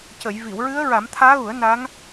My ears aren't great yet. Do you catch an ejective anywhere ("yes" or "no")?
no